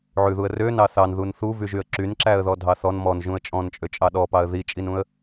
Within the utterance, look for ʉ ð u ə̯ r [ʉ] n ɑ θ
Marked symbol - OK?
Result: no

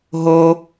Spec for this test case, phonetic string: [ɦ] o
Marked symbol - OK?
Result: yes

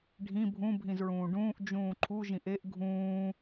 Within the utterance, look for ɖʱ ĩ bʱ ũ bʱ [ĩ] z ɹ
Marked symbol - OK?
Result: yes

